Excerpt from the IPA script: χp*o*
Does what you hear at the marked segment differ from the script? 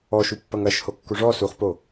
no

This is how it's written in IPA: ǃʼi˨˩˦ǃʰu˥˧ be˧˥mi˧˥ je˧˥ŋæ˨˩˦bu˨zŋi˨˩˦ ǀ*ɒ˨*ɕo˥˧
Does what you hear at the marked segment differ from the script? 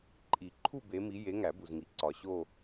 no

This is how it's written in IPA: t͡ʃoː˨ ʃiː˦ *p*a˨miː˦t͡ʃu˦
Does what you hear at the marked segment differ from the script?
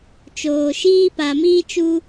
no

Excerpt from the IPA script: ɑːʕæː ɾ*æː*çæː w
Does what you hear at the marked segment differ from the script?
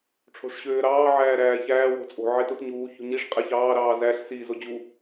no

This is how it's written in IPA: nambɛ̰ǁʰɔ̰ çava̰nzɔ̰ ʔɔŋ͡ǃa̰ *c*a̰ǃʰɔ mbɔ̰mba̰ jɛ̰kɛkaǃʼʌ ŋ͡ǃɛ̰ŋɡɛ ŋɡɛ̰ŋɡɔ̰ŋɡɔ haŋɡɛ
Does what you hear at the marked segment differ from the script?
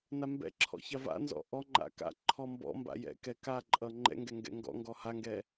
yes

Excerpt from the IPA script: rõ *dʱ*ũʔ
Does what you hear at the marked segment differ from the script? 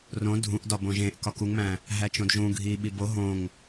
no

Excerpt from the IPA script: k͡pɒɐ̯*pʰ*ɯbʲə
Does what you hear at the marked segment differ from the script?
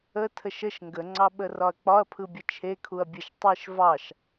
no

